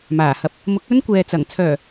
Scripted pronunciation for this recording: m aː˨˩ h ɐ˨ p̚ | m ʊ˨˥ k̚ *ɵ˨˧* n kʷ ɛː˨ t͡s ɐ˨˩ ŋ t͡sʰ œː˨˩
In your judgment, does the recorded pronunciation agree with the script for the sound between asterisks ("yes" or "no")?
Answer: no